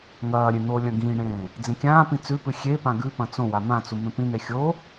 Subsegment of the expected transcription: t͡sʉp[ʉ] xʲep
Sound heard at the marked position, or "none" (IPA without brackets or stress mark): ɨ